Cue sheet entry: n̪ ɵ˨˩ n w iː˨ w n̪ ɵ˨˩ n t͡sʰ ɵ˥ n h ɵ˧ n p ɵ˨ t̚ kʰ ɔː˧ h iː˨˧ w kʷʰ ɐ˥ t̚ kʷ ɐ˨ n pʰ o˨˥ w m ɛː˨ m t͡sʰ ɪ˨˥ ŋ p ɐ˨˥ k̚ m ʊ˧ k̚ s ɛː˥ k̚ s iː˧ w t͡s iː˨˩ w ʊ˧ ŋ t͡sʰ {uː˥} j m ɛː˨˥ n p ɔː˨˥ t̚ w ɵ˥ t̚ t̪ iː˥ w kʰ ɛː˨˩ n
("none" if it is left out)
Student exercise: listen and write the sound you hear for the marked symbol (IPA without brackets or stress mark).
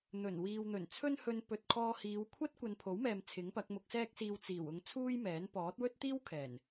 uː˥